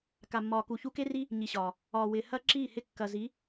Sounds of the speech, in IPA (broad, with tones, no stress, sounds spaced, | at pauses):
k a˨ mː ɒː˨ k u˨ ç u˧ k e˦ r i˦ | ɲ i˨ ɕ ɒː˨ | ɒː˨ w ɪː˨ h ɐ˦ ǁ iː˦˨ h ɪ˧ kː ɐ˨ z i˨˦